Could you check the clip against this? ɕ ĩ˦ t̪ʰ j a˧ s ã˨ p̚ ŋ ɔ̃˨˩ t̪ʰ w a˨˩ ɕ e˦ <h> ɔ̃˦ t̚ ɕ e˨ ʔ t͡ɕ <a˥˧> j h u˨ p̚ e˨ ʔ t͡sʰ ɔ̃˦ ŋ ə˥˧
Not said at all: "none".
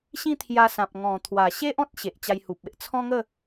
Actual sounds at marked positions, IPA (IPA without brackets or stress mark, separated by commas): ʔ, a˧